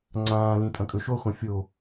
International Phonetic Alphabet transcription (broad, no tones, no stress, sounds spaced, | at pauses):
ŋ͡ǀ ãː l ĩ tʼ ɐ̃ kʼ ɵ ʃ o χʷ ã fʲ o